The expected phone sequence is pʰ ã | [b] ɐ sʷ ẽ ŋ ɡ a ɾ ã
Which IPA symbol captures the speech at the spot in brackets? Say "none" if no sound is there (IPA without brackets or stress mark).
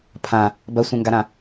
b